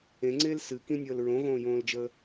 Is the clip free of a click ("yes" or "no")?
no